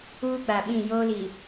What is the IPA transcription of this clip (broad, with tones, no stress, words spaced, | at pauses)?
uː˦ɡ͡ba˨ ɓĩ˦˨ joː˦li˨